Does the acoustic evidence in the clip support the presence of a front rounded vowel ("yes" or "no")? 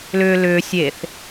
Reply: yes